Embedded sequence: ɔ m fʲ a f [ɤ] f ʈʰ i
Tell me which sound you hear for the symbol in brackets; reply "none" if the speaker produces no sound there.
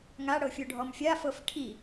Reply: ɤ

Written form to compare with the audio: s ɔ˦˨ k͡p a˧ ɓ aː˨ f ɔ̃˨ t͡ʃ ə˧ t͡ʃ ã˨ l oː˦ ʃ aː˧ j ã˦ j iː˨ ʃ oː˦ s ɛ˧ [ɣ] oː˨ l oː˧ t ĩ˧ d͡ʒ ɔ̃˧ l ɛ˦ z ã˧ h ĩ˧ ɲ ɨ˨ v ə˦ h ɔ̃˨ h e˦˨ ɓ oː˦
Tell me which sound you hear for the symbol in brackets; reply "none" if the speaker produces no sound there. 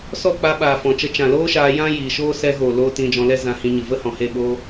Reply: ɣ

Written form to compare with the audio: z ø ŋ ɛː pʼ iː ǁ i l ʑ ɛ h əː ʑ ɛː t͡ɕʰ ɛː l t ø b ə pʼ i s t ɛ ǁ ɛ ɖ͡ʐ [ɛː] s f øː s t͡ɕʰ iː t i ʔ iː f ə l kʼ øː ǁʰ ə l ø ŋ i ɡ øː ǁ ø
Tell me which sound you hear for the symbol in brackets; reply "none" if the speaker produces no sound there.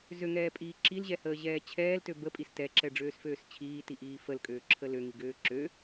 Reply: øː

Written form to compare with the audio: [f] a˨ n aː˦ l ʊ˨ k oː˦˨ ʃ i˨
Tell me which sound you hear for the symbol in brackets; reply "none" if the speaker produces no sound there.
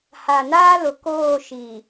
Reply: h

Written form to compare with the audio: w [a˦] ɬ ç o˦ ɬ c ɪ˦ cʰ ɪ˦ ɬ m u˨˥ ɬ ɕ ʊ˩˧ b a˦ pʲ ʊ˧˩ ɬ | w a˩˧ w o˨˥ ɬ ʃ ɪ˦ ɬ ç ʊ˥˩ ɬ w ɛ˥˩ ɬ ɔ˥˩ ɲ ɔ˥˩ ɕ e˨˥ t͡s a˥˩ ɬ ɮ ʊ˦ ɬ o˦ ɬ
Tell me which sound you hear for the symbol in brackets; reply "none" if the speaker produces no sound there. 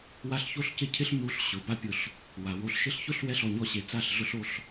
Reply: a˦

